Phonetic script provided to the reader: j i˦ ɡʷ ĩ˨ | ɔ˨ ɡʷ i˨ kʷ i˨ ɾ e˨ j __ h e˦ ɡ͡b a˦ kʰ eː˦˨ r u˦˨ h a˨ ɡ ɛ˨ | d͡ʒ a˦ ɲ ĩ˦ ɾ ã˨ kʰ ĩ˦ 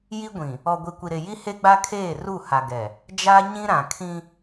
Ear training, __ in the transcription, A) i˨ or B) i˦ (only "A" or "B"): B